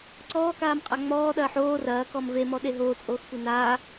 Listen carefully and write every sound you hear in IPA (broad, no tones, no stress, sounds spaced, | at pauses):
ǀ ɔː k aː m qʼ a ŋ͡m ɔː ɗ ɐː ħ oː r ɐː k ɔ m v e m ɔ ɗ e ɦ oː t͡sʼ oː x kʷ e n aː